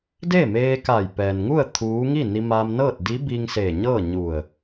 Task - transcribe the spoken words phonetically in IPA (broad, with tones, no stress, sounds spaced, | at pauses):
d eː˥˨ m eː˧ k a˧˩ j p ɛː˩ n ŋ u˥˨ ə̯ t̪ʰ uː˧˥ ŋ i˥˨ n i˧ m aː˧ m n ɤː˥˨ t̚ d i˧˥ b i˧ ŋ s eː˧˩ ɲ ɤː˥˨ ɲ u˧˩ ə̯